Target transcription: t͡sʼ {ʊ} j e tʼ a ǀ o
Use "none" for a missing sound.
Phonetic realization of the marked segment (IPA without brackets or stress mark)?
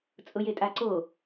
ʊ